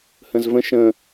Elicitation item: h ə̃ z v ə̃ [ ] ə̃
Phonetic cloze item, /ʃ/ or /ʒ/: ʃ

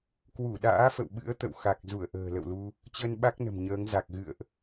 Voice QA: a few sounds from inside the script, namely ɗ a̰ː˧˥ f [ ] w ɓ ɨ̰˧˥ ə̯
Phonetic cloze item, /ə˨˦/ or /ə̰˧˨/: ə̰˧˨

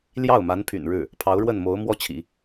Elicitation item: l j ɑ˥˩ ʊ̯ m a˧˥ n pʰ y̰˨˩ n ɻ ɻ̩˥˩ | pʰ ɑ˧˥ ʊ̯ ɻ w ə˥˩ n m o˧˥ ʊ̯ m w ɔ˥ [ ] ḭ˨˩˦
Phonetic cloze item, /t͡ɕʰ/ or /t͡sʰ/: t͡ɕʰ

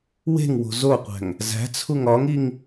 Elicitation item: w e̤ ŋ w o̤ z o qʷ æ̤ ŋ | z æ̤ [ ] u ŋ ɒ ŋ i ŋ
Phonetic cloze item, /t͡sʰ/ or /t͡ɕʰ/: t͡sʰ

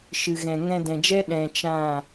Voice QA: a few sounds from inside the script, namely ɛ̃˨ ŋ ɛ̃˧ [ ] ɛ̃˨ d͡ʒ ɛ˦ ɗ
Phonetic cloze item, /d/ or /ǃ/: d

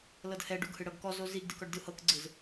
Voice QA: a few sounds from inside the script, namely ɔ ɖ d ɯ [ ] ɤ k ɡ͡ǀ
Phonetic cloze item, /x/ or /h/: h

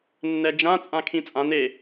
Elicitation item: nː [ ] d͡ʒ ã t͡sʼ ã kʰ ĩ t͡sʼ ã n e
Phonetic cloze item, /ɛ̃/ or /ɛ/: ɛ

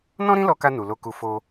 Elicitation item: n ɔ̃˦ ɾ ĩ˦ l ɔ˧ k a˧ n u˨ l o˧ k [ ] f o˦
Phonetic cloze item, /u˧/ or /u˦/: u˧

